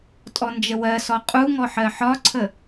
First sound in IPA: tʼ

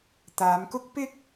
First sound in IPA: t̪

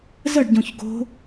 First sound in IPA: z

